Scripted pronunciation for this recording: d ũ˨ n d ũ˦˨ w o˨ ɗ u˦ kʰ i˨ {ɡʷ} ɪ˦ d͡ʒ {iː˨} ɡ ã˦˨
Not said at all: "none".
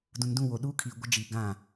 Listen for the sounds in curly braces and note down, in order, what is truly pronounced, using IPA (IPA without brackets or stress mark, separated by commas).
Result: ɡʷ, i˨